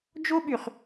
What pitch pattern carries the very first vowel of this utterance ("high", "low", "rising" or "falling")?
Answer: high